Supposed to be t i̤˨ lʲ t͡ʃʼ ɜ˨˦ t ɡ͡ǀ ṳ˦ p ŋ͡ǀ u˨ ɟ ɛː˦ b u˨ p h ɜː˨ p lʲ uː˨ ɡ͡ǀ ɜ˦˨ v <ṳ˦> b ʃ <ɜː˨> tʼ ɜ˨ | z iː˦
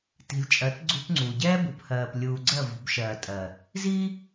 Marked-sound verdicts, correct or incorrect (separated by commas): incorrect, correct